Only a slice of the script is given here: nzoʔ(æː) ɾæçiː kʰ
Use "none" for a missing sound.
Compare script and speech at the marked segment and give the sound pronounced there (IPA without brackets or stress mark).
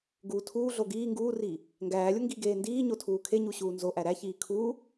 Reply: æ